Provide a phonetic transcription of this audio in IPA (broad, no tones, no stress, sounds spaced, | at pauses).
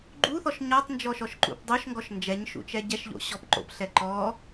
ɡ͡ǃ u θ ɔ ʃ ɲ ɔ tˤ n d͡ʒ ɔ ʃ ɔ ʃ ǃ ṵ p dˤ o ʃ ŋ ɡ ɔ ʃ n d͡ʒ ɛ ɲ ʃ ṵ t͡ʃ ɛ ɟ ɛ ʃ ʎ o̰ ɕ ɔ p ǃ o̰ p ɬ ɛ ǃ ɔ